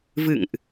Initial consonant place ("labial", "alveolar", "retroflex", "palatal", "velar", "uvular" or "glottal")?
labial